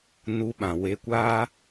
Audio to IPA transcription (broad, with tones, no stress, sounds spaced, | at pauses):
n u˧ ɓ ã˨ w e˧ kʷ a˦